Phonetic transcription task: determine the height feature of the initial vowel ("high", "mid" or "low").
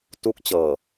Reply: high